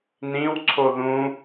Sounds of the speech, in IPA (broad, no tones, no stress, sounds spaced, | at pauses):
n ĩ w ǀʰ o ð ũ